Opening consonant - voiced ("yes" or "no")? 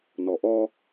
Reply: yes